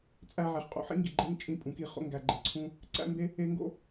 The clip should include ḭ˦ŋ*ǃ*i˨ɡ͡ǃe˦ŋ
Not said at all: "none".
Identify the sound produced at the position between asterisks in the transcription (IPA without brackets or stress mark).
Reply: ɡ